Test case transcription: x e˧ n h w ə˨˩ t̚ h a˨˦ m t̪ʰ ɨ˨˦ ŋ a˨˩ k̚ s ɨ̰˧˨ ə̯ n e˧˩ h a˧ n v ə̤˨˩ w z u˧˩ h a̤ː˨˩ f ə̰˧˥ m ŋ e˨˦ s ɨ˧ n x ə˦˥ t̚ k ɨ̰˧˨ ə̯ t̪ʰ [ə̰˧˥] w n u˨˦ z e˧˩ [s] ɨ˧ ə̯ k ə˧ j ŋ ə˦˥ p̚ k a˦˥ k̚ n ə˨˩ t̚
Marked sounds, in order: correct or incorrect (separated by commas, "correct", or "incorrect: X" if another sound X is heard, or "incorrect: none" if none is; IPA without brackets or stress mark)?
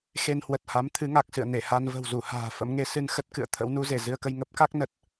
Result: correct, incorrect: z